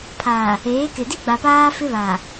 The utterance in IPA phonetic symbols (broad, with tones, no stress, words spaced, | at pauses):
pʰaː˨ | eː˨˦kɪ˨ di˦ɡ͡ba˨ paː˦ fɪ˦βaː˨